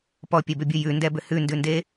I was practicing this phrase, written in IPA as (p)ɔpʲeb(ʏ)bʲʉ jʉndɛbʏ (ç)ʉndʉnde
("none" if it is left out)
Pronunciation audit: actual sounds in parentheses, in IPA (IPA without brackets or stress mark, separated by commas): p, ʏ, h